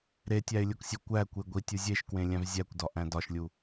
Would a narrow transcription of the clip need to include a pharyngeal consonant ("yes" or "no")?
no